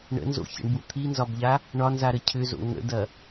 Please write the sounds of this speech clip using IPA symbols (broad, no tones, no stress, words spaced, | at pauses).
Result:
ɳə̰nzo̰çə̰ɳbu t̪ʰinzɒbʎa | ɳɒnzaɾə cʰʏzo̰ ŋə̰dɐ